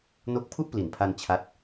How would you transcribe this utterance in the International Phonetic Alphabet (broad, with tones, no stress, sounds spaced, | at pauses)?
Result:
n o˦˥ k̚ pʰ u˥˩ ʔ p l i˨˩ n pʰ a˧ n t͡ɕʰ a˦˥ t̚